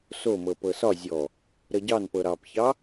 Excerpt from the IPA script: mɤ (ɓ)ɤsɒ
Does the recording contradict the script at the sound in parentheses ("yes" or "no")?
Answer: yes